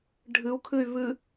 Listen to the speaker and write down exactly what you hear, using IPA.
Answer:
ɖʱɨu̯kʰɨy̯ βɨ

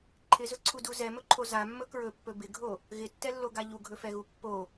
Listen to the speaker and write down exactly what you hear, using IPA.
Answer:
ǃʰɪzɵǀʰudu zɛmɵǃʰo zamːɵ kɹɵpːɵ bɪɡʱo | ɣɪtːɛlːoɡa ʎuɡʱɵfɛɣu pːo

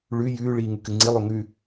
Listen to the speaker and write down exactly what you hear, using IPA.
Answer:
ɭʉ jʉː ɭiːŋʉkɨŋ͡ǀi lˠoŋʉ

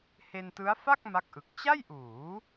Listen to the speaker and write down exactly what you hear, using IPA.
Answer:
he˧ntɯ˦˥a̯fa˥˩k̚ ma˦˥k̚ʔɯ˨˩k̚ t͡ɕa˥˩jʔuː˩˦

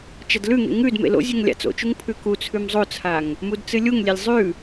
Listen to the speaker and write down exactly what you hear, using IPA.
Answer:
t͡ʃɐdlʉŋḛ ŋʉdmḛ lo̰zʲʉŋ lʲa̰t͡so̰t͡ʃuŋ pʰʉkut͡sʰʉm zˤot͡sʰaŋ | mudt͡sɨlʲuŋlʲelʲ zˤʉ

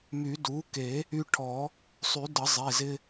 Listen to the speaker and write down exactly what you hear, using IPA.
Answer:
my˨˩˦du˩˥ke˨˩˦ | y˧ʈʰɔ˨˩˦ | sˤy˨˩˦də˨˩˦ zˤe˩˧˩zɪ˧

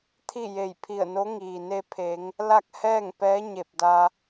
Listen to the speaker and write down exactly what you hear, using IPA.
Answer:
t̪ʰi˥˨je˧˩jpʰi˧˩ə̯no˧˥ ŋiː˩ne˧pʰe˩˧ŋ | la˥˨k̚hɛː˥˨ŋpɛː˧˥ ɲe˧˩p̚da˧

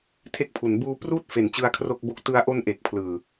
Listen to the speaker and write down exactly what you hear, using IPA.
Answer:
tʰe˦˥k̚pʰu˩˦n buː˧ pruː˥˩t̚fe˩˦n t͡ɕɯ˦˥a̯kʰro˥˩k̚bo˥˩k̚ tɯ˧a̯ʔo˦˥n ʔe˨˩k̚pʰlɯː˨˩

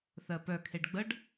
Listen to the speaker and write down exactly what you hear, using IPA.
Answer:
θɜpœ kʰeɖɡ͡bəɖ

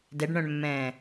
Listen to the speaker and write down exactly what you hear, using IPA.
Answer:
dɛɖɳœ̃ɳmːɛ̃ː

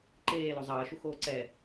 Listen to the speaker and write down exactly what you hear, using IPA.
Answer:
ǃeːlo zˤʌːʃu xoːǀɛ

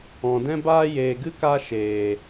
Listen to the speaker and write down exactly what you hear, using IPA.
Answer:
ɔ̃˨dɛ̃˦baː˦ jeː˨ɡɨ˦ka˧ ʃeː˨

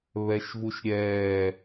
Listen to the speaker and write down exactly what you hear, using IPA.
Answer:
βɛʃvuʃɾʲɛː

